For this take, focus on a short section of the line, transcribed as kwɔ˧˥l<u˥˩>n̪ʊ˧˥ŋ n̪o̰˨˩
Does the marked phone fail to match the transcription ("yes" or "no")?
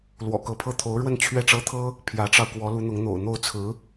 yes